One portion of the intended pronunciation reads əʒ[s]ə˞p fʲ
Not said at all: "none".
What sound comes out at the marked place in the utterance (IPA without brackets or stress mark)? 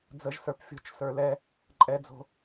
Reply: s